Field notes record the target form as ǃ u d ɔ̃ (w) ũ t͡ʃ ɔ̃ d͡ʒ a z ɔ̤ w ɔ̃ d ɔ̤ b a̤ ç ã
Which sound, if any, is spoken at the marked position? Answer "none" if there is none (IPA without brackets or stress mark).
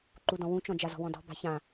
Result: w